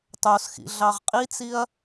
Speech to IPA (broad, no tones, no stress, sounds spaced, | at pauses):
tˤ o s x ḭ ɮ ɑ ʁ qʼ i t͡s i ɐ̯